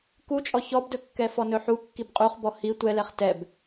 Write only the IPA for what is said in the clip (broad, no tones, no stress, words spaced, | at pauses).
kut͡ʃʼɔ çɔbdɵkːɛ fɔnɵħu kːibqʼuχbɔ hi tʷɛlɛχ tɛb